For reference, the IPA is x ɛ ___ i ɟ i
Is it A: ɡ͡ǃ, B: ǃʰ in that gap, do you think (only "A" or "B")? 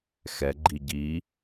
A